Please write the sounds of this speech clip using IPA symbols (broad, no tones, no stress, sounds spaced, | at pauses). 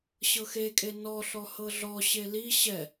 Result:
ɕ ɤ x e kʼ e n ɔ ɬ ɔ h ɤ ɮ ɔ ɕ e l i ɕ ɛ